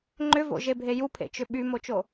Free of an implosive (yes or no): no